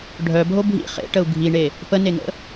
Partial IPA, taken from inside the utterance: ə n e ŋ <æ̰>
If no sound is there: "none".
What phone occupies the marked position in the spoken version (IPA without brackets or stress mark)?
ə̰